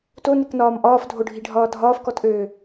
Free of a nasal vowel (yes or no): yes